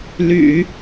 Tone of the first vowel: low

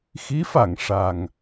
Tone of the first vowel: rising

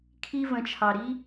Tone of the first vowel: high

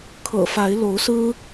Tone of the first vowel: low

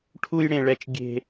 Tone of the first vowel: high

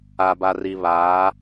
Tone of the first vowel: low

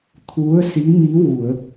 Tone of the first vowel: rising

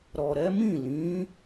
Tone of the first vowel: low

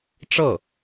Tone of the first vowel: falling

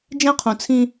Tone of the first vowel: high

